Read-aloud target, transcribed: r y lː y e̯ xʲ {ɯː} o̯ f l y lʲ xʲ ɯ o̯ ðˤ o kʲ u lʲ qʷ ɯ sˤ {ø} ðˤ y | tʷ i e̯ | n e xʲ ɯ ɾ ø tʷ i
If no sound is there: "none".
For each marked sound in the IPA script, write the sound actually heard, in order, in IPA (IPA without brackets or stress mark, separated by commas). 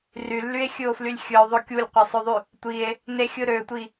ɯ, ø